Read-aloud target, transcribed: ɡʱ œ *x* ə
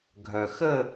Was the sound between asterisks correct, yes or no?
yes